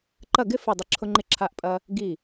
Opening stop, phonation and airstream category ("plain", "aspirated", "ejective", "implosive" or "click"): click